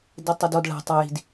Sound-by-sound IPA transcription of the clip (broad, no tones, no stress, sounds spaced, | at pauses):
d e tˤ e d ɔ d ɭ a̤ tˤ a j i̤ d